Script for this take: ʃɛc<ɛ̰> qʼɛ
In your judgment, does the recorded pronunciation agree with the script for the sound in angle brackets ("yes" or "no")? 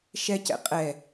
yes